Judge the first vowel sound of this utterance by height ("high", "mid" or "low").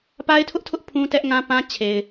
low